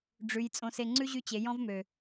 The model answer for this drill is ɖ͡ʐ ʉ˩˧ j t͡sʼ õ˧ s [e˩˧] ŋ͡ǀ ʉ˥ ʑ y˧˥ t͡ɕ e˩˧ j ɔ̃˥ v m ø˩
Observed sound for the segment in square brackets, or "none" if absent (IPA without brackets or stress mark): e˧